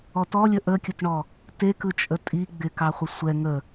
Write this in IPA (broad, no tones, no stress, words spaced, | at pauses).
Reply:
ɔtɔlʲə ʔəkʲʊtɳɔ | tekɯt͡ʃʼə tʼi ɡ͡bɪkɑχʷɪ sʷɛ ŋə